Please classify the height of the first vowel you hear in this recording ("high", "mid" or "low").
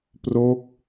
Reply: mid